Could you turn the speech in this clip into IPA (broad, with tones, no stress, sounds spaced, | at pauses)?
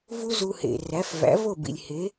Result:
v u˥ z u˧ h ḛ˩ r æ˩˥ f v æ̰˩˥ v o˥˩ b ḭ˩ lʲ h e˩˥